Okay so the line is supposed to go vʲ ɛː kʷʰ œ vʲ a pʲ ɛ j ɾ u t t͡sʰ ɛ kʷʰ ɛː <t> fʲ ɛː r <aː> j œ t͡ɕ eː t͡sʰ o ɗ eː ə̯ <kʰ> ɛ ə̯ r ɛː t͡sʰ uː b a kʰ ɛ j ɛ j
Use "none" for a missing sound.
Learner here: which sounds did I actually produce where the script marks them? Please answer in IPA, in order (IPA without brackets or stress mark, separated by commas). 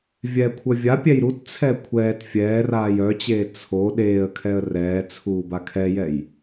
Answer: t, aː, kʰ